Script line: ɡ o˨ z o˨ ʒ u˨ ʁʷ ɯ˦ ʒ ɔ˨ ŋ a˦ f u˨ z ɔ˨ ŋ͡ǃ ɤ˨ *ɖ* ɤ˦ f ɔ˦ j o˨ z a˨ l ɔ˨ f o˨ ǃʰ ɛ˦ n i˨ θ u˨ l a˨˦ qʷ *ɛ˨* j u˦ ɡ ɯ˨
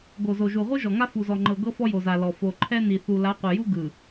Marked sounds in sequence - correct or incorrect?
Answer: incorrect: ɡ, correct

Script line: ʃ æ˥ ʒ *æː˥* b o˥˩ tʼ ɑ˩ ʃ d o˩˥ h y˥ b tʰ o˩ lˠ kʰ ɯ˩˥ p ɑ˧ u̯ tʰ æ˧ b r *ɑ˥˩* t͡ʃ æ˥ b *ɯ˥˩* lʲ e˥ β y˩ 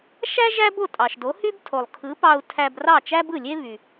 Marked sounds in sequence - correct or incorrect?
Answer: incorrect: æ˥, correct, correct

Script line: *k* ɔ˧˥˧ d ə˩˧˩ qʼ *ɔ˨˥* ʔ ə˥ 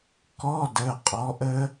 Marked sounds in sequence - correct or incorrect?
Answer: correct, correct

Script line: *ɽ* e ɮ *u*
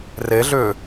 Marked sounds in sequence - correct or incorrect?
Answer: incorrect: r, incorrect: ʏ

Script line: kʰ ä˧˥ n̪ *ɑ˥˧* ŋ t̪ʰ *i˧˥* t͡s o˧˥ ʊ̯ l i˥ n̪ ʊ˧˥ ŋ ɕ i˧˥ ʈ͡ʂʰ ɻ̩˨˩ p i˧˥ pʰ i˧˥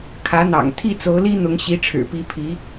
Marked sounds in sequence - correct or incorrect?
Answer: incorrect: ɑ̰˨˩, incorrect: i˥˩

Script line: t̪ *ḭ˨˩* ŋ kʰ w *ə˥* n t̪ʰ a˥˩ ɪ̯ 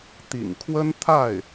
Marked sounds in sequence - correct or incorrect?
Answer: correct, correct

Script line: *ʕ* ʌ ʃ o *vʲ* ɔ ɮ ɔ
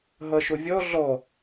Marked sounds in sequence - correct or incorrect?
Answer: incorrect: ɦ, correct

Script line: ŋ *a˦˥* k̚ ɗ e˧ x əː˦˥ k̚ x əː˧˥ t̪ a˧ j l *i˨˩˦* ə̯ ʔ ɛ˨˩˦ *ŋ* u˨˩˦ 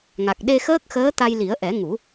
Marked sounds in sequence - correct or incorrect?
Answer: incorrect: a˨˩, correct, correct

